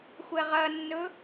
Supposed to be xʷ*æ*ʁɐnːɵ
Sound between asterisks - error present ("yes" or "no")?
yes